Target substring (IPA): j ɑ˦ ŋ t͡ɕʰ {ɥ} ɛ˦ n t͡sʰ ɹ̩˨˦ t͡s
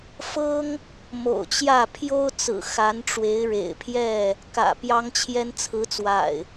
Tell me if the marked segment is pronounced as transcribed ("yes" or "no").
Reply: no